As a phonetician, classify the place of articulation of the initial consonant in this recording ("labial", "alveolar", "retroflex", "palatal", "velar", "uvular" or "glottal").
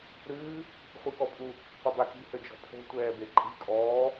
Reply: alveolar